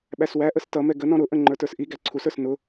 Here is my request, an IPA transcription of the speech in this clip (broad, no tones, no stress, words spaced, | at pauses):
ɓæswæʔəs tʌ mɛɡənɔ̃ ɾʊʔə̃ ŋ͡ǃə˞tə˞sʔiɡæ ǀʰusə˞s nʊ